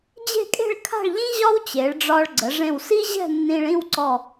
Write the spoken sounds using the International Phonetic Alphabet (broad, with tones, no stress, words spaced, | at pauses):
d͡ʑe̤˥˧kʼe̤˥˧ɭkʰa̤˥˧ɭʎĩ˥ ʑɒ˥wt͡ɕe˩˧ɭɖ͡ʐɒ˧ɭɡ͡ǀə˩˧ ʐẽ˧˩wsi˥ʑɛ̤˥˧ nːĩ˧ɭĩ˥˧wǀɔ˧˩